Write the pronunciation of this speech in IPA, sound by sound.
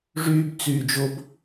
ʐ yː b t͡s yː d͡ʒ o b

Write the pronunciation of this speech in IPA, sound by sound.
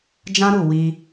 d͡ʒ ã˦ ɾ u˦˨ w i˧

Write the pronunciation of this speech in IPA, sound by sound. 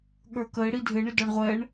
ɠ ə˞ k ə ɪ̯ ɽ i dʱ ɪ ɳ ɪ d ɔ ɳ ʁʷ ɛ ɳ

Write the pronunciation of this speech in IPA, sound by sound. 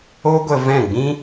o˦ ɡʷ ə˧ v ɛ̃˦˨ ɡ͡b ĩ˦

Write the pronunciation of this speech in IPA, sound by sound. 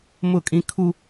m ʊ˦˨ kʼ ĩ˦ kʰ u˦

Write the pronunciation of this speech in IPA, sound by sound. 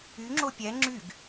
y ŋ͡ǁ o pʲ ɛ ŋ͡ǁ y ɡ

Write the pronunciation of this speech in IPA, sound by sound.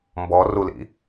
m b ɔ r u l ḭ

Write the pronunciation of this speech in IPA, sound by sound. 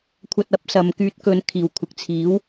kʷʰ ɐ˧ t̚ ɐ˥ p̚ s ɐ˨ m k yː˨˥ t̚ k ɵ˨˧ n kʰ iː˨˩ w kʷʰ ɪ˨ k̚ t͡sʰ iː˨˥ w

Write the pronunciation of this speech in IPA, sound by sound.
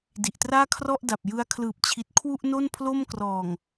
d i˨˩ ʔ t r aː˥˩ kʰ r ɔ˥˩ ʔ d a˨˩ p̚ j ɯ˧ a̯ kʰ l ɯː˨˩ p̚ t͡ɕʰ i˨˩ t̚ kʰ w u˥˩ ʔ n o˥˩ n pʰ l o˥˩ m k r ɔː˨˩ ŋ

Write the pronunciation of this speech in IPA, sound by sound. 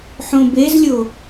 ħ õ b e z lʲ o

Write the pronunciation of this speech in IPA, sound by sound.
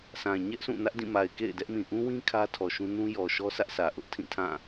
s ã˨ ɲ ɛ˦ ʔ s ũ˦˨ n ä˦ ʔ d ĩ˦˨ m a˨ ɪ̯ k ḛ˦˨ ɪ̯ d ɛ˦ ʔ m ĩ˨ ʔ ũ˦ w ĩ˦ kʰ ä˦ tʰ ɔ˨ ʃ ũ˦ n ũ˦ j ɔ˨ ʃ ɔ˦ sʰ ä˦ ʔ s ä˨ ʔ ʊ˦ ʔ tʰ ĩ˦˨ tʰ ã˦˨

